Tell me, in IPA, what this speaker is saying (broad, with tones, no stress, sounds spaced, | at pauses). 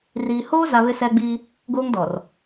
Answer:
r iː˨ h oː˦ z a˨ β ɪ˦ s ɛ˦ ɡ͡b iː˦ | ɡ oː˦ ŋ d ɔ˨ r